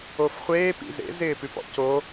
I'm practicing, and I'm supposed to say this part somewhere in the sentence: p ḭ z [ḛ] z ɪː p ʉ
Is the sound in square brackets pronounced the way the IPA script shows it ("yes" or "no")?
yes